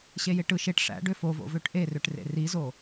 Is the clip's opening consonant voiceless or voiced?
voiceless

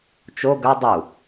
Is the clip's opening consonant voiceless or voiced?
voiceless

